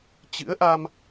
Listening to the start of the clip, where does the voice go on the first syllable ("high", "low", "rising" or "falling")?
rising